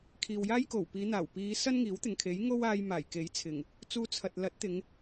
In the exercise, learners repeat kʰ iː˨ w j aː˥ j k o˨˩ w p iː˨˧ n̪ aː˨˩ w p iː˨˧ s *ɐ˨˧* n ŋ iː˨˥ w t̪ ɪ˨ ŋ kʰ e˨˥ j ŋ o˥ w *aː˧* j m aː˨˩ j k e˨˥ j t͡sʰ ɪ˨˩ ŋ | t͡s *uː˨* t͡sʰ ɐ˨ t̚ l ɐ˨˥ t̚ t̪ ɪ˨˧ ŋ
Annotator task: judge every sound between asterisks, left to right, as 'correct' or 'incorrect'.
incorrect: ɐ˥, correct, incorrect: uː˧

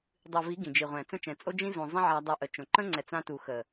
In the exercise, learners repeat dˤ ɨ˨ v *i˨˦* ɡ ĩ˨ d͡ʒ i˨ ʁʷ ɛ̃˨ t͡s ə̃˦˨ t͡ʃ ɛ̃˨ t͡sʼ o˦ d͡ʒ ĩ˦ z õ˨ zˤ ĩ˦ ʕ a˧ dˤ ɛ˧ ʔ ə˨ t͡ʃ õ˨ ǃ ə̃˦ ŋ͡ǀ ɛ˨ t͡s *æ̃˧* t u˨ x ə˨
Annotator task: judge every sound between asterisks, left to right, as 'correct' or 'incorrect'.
correct, incorrect: ã˧

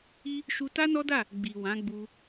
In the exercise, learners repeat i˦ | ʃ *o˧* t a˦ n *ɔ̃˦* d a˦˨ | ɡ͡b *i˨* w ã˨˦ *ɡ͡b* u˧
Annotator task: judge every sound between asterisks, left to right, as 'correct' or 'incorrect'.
incorrect: u˧, incorrect: ɔ˦, correct, correct

